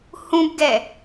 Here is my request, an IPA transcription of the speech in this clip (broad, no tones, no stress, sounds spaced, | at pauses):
h ũ b ɡ ɛ